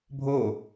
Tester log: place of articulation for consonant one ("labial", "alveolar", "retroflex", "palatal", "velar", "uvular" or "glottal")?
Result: labial